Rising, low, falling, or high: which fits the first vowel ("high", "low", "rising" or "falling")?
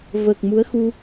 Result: low